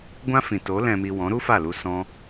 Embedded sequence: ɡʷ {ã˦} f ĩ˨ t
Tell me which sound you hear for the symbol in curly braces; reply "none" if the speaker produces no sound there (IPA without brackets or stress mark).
ã˦